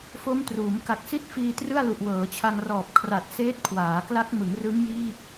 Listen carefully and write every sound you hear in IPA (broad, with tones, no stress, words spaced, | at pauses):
fo˦˥mtruː˩˦m ka˨˩k̚si˥˩t̚fiː˧ trɯ˥˩a̯lu˨˩ʔ wɤː˩˦t͡ɕʰa˧ŋrɔː˨˩p̚kʰra˨˩t̚ seː˦˥t̚kʰwaː˩˦ kla˦˥k̚ mɯ˩˦ŋrɯ˦˥ŋjiː˥˩k̚